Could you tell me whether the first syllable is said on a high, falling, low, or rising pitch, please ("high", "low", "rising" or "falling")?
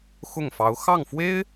falling